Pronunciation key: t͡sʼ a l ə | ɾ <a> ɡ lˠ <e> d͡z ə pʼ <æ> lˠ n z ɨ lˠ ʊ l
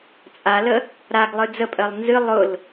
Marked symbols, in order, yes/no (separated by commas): yes, no, no